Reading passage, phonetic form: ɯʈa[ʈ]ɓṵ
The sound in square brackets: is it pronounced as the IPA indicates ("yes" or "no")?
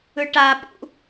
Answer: no